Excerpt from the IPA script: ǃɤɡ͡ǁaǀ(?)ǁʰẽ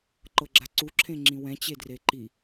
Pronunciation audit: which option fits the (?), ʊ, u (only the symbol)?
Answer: u